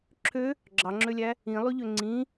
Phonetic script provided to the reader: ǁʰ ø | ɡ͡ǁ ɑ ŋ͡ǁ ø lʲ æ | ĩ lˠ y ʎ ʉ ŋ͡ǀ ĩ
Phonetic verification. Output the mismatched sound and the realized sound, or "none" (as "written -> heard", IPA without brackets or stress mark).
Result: ʉ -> ø